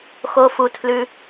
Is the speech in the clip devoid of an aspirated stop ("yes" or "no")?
no